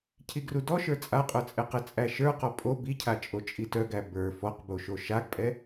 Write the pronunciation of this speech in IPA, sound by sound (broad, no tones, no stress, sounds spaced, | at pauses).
cʰ i ɡ r u d ɔ ʃ ə˞ t͡sʼ a qʼ ə˞ t͡sʼ ɛ q ɛ t͡sʼ æ ʃ ə˞ q ɔ pʼ o b i cʰ a t͡ʃʼ o t͡ʃʼ i t œ ɡ æ b ə˞ f ɔ q b o ʃ o ʃ a ɡ pʼ ɛ